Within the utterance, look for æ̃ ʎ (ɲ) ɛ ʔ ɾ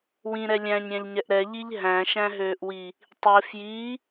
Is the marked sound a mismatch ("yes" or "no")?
no